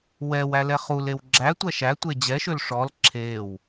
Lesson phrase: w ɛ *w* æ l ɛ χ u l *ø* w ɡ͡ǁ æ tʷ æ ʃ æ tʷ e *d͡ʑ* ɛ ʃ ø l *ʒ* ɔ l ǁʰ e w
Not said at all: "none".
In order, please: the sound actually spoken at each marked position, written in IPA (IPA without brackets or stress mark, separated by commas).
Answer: w, e, d͡ʑ, ʂ